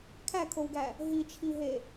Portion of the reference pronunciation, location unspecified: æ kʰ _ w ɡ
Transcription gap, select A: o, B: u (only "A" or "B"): A